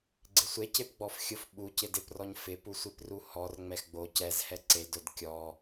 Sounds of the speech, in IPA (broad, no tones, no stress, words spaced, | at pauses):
ɡ͡ǀɪsʷe cepɡ͡bɔfxʲʊf ɓucɪ dɪprɔɲ fɪpusʷipru hɔr ŋ͡mɛxɡ͡bo cɛzhɛ ǀedʊd kʲɔ